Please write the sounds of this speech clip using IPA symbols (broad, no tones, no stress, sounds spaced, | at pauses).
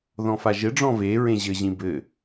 ð ɔ̃ f a ʒ ɘ ɖ͡ʐ ɔ̃ v e ɹ ẽ ʑ ɘ ʑ ĩ b ɘ